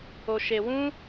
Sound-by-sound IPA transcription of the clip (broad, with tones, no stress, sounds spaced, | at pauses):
o˧ ʃ e˧ w ũ˦